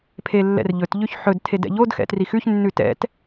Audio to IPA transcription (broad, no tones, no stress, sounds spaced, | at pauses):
pʰ e lː ɛ̰ r ʎ ɵ t ʎ ʉ ç ħ ɵ d tʰ e d ɛ̰ ʎ o d x ɛ̰ t r i x ʉ ç nː ʉ t ɛ̰ t